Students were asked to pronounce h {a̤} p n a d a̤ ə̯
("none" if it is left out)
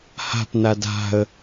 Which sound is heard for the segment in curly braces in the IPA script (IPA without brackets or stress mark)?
a̤